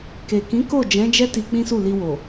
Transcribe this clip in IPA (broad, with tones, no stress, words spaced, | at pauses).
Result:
ke˨ kĩ˨˦ ko˦˨d͡ʒɛ̃˨˦ d͡ʒɛ˦ ti˧ k͡pĩ˦su˦˨li˧wo˨